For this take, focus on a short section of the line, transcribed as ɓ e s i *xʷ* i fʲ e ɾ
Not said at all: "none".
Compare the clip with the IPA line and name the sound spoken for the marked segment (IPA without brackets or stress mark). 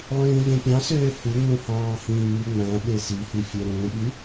h